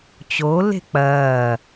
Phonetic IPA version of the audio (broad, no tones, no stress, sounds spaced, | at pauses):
t͡ɕ o l e̤ k͡p ɐː